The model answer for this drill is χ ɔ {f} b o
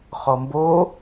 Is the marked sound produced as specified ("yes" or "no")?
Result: no